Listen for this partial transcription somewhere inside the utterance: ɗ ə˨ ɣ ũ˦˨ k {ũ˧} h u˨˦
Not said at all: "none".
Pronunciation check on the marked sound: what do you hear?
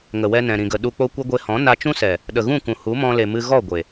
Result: ũ˨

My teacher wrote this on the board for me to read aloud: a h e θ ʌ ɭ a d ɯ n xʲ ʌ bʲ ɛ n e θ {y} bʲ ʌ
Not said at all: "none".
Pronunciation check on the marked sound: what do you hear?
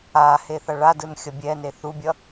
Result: u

